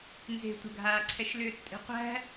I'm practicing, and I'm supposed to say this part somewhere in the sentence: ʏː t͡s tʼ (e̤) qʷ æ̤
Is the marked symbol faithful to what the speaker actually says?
yes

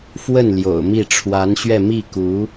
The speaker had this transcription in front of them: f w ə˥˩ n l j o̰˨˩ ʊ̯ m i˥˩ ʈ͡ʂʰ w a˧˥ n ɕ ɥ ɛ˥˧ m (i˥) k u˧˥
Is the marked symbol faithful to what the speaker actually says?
no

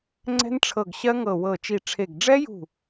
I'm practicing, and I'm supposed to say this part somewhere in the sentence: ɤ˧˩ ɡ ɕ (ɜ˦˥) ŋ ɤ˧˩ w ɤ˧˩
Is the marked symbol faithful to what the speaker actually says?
yes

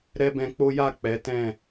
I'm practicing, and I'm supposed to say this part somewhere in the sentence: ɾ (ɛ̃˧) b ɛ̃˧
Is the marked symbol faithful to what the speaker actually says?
no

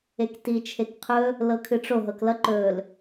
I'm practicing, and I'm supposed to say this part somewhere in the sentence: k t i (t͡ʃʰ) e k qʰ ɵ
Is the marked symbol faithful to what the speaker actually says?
yes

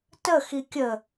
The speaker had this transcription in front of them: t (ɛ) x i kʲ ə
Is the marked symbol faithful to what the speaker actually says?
no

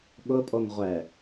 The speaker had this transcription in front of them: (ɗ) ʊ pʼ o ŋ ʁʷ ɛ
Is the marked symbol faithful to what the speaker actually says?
no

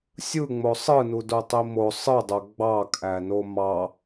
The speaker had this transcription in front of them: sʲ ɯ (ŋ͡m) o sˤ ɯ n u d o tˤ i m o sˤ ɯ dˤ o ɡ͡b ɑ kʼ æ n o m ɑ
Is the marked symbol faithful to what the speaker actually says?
yes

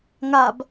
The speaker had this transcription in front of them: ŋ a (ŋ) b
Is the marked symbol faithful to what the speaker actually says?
no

